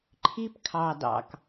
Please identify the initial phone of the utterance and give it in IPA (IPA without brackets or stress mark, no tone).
ǃʰ